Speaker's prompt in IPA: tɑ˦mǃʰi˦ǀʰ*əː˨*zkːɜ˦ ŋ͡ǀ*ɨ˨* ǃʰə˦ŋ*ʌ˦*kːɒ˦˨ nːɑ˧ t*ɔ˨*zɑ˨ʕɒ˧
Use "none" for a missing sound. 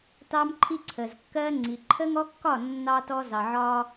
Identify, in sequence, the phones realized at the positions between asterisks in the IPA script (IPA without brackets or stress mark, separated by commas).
ə˨, i˨, ɔ˦, ɔ˧